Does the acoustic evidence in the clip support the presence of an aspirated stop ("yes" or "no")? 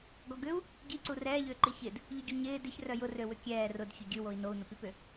no